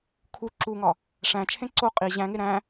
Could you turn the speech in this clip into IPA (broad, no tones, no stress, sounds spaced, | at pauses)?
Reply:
kʰ u ǁ u ŋ ɒ | ʂ æ̃ t͡ʃʰ ẽ ǀ o qʼ i ʑ æ̃ ŋ e ɾ æ̃